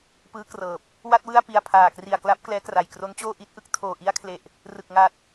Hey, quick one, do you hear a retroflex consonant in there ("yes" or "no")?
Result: no